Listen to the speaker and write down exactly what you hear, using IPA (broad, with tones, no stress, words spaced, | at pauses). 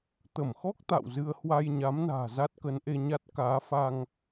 t̪ə˧˩mxɔ˦˥k̚ t̪a̰˧˨wzɨ˧ə̯ hwa˧jɲa˨˦mna̤ː˨˩ za˦˥t̚kə˨˦nʔe˧ɲa˦˥t̚ kaː˨˦fa˧ŋ